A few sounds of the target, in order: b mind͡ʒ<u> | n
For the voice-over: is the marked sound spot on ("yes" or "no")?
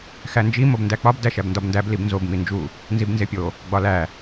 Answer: yes